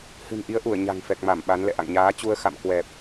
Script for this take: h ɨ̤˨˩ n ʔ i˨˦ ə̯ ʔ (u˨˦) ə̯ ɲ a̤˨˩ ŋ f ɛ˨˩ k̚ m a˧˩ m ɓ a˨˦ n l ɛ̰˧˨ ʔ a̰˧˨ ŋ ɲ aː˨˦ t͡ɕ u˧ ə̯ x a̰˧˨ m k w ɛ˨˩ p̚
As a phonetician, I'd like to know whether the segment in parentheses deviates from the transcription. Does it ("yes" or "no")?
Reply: yes